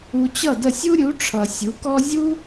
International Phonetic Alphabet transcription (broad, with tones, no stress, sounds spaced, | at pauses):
u˨ t͡ɕ ʌ˥˩ d ə˥˩ sʲ u˥ ɾʲ u˩˥ ʈ͡ʂʰ ʌ˨ sʲ u˩˥ k ɔ˥ zʲ u˥